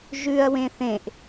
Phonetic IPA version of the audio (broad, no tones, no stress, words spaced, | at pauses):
ʒʉɐ̯wẽ θẽʔ